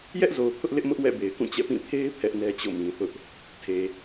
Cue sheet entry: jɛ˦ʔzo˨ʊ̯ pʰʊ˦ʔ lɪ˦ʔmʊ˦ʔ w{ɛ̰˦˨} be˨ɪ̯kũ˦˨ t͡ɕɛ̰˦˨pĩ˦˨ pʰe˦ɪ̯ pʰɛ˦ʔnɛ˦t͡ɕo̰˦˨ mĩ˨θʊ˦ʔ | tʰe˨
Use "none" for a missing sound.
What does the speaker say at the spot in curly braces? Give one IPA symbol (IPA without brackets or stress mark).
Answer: ɛ̰˦˨